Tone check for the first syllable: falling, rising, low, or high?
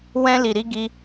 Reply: high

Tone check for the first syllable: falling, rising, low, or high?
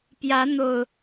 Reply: rising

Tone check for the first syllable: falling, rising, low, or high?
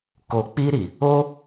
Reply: low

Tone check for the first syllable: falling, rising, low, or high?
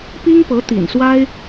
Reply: high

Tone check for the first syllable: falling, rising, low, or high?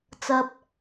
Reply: low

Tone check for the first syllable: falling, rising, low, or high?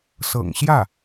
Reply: low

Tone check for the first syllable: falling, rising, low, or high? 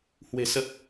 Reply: low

